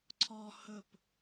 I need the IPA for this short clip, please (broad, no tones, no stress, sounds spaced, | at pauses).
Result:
ǀʰ ɔ h ɵ p